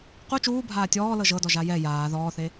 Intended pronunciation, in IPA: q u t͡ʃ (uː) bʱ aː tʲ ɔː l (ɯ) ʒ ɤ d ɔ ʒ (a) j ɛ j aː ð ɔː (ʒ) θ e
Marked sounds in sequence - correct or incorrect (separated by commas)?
correct, incorrect, correct, incorrect